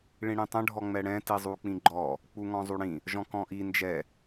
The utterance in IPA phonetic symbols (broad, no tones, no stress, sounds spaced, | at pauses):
ɭ ĩ ɽ ĩ tˤ ə̃ ɖʱ ɔ ŋ͡m ɛ ɽ ɛ̃ t i zˤ u k͡p ĩ ɡ͡ǃ ɔ | k͡p u ŋ ɔ̃ zˤ u ɽ ĩ | ʒ ɔ̃ k ɔ̃ ʔ i n d͡ʒ ɛ